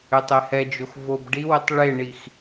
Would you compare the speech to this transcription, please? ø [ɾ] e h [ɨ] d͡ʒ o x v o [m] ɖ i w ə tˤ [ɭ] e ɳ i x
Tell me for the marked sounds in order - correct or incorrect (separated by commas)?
incorrect, incorrect, incorrect, correct